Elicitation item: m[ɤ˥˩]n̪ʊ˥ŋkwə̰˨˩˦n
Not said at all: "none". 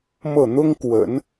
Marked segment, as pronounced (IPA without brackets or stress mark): ɤ˥˩